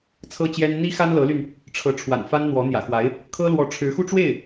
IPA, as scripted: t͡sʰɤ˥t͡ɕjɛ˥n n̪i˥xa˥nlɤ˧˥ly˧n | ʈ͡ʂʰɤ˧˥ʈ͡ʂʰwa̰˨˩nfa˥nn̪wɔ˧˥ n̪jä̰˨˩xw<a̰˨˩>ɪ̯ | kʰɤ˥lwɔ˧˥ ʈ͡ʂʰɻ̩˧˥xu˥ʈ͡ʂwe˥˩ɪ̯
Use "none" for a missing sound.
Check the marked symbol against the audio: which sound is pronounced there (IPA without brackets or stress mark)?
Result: a˧˥